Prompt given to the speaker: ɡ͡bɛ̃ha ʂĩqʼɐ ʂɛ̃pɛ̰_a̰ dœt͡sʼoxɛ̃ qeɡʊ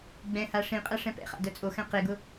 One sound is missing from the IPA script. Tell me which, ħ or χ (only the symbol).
χ